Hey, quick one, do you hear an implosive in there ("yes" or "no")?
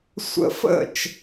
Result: no